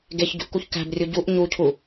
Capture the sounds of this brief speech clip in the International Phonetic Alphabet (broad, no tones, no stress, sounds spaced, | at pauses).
ɡ e ç ɟ ṳ ʔ k u ç k æ̤ b rʲ u ɟ u ʔ ɲ u cʰ u